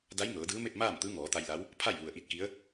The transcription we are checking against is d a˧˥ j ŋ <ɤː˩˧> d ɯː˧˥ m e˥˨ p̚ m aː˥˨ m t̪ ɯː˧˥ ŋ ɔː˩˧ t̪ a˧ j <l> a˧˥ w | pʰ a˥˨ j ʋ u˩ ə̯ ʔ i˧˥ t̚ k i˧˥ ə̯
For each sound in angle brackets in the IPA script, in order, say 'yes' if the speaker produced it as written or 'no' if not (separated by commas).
yes, yes